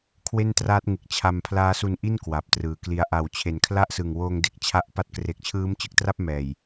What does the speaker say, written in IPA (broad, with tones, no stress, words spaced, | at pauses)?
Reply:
kʰwe˥˩ntraː˦˥t̚ŋɯ˨˩k̚ t͡ɕʰa˧mpʰlaː˦˥su˧nʔi˥˩n kwa˨˩p̚trɯː˨˩kli˧a̯ ʔa˨˩w t͡ɕʰe˨˩nkʰla˥˩ʔsɯ˨˩ŋwoː˧ŋ de˦˥k̚t͡ɕʰa˦˥ʔpa˦˥t̚ kre˨˩k̚t͡ɕʰɯː˦˥mt͡ɕɯ˨˩k̚tra˥˩p̚ mɛː˨˩j